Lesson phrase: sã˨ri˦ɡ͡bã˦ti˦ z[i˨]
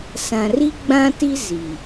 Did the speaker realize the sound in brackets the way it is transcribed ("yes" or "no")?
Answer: yes